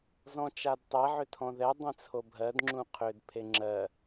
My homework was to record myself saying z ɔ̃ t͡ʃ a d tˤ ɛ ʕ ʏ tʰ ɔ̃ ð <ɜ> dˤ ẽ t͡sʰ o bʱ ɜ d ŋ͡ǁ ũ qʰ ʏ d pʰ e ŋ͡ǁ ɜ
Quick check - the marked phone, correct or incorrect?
incorrect